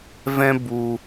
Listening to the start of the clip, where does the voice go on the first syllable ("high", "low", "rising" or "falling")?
high